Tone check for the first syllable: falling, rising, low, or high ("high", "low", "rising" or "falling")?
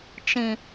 low